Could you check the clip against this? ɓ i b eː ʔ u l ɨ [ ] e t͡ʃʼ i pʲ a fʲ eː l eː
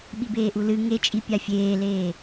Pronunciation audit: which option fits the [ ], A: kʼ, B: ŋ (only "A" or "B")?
B